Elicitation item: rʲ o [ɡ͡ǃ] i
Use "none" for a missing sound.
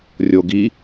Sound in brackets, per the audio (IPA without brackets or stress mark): ɡ